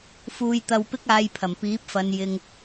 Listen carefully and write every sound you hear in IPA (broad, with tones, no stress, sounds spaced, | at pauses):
f uː˧ j t̪ ɐ˧ w p ɪ˥ k̚ aː˧ j pʰ ɐ˨˩ m p iː˨˥ p̚ f ɐ˨˧ n j ɪ˧ ŋ